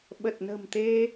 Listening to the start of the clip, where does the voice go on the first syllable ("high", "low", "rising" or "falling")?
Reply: low